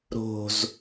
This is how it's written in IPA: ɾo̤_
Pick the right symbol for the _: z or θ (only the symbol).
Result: z